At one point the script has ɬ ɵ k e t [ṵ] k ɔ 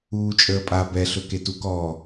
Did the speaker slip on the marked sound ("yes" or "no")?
yes